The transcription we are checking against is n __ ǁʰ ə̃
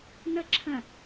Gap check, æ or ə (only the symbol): ə